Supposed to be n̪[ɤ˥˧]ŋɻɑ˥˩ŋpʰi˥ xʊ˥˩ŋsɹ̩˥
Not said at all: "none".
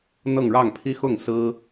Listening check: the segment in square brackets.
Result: ɤ˥˧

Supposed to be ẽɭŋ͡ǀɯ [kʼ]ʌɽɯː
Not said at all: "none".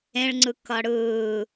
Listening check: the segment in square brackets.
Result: k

